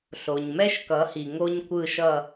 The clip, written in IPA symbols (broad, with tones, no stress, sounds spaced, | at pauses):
ɬ o˩ ɲ m ɛ˥ ʃ k ʌ˩˥ h i˩ ŋ o˥ ɲ kʷ ɯ˥˩ ʃ ʌ˥˩